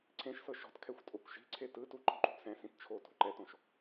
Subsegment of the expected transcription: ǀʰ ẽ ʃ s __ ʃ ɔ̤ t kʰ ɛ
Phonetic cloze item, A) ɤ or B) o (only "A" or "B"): A